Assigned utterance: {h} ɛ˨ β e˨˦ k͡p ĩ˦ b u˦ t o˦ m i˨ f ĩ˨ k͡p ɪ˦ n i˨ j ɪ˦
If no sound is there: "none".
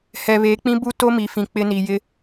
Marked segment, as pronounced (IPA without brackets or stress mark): h